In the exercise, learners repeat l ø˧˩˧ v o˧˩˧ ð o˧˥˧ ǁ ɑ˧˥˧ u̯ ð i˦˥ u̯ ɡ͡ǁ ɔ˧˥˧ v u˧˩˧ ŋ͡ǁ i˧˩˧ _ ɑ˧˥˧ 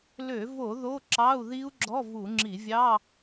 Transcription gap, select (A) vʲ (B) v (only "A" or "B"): A